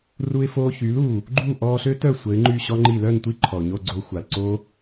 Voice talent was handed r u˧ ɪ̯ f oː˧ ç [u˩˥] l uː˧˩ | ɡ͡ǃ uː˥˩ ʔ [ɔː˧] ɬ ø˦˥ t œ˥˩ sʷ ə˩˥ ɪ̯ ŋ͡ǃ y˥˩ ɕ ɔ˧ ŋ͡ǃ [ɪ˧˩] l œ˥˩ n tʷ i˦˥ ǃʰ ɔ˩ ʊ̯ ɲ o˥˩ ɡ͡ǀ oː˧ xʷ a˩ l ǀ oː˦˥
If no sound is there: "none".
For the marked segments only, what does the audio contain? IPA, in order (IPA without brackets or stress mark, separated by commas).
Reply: y˩˥, ɔː˧, i˧˩